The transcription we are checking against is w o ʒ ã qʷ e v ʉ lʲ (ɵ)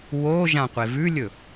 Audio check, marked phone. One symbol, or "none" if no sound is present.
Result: ɵ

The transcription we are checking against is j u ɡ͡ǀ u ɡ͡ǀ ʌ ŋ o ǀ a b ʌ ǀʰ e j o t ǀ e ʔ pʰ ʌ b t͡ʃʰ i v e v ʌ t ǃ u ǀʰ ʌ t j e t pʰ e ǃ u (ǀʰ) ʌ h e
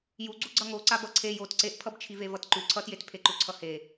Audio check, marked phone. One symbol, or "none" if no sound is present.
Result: ǀʰ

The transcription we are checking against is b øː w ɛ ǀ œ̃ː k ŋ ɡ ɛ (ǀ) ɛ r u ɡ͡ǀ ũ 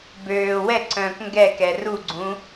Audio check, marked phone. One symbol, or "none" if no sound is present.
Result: k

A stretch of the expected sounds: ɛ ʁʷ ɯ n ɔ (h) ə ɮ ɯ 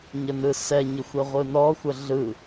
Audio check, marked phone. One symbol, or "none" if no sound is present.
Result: xʷ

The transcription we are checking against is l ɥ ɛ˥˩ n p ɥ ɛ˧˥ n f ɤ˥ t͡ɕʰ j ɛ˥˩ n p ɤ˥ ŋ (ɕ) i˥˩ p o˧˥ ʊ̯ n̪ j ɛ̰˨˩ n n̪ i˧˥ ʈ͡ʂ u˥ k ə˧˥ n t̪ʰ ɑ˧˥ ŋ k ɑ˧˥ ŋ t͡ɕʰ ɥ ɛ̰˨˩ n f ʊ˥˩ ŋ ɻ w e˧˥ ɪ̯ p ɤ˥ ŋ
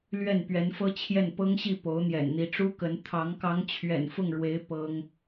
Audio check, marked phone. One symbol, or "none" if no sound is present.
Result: ɕ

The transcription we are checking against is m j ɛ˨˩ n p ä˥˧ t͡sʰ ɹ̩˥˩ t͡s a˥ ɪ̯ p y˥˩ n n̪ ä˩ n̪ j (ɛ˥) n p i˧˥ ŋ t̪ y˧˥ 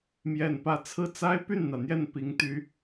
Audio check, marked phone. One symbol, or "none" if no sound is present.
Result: ɛ˥˩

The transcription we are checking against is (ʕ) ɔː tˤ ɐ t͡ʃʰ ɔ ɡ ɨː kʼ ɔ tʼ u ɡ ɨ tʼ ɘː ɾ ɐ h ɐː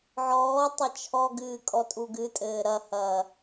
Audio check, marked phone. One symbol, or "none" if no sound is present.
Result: ʕ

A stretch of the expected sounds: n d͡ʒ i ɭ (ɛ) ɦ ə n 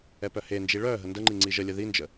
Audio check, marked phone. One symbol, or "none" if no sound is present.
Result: œ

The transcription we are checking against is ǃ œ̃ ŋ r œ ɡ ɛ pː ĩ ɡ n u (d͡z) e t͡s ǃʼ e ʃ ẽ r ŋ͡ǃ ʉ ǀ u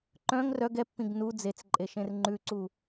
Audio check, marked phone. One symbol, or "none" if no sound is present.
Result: d͡z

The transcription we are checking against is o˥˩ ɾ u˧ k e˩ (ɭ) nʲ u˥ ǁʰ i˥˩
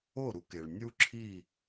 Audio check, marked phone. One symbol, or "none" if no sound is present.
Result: ɭ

